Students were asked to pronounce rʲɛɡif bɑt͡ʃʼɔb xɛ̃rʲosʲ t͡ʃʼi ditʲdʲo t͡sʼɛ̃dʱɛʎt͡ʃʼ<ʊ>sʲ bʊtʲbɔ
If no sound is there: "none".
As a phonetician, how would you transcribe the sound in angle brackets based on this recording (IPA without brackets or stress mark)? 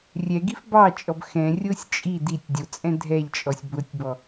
ɔ